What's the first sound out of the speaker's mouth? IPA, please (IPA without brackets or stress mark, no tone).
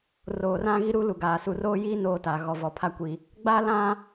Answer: r